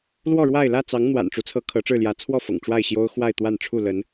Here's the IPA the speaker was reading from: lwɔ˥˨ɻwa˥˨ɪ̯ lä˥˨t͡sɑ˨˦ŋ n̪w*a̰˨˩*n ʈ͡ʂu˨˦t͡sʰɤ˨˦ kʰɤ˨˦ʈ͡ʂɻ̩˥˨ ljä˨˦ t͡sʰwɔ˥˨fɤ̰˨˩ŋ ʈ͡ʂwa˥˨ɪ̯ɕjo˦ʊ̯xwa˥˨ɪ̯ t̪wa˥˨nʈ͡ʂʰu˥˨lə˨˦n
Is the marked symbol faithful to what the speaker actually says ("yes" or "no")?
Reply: yes